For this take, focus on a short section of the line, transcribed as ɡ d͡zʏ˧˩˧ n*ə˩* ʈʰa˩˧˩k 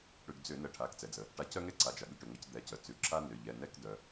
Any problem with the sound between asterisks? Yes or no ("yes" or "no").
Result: yes